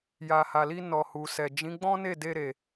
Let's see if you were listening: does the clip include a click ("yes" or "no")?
no